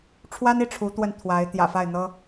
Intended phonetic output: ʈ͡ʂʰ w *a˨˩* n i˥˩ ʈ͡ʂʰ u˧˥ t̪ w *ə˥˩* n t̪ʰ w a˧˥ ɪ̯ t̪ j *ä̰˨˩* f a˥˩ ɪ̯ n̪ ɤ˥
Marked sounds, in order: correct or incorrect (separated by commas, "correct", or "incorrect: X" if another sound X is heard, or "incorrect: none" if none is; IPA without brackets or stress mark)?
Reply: incorrect: a˥, correct, correct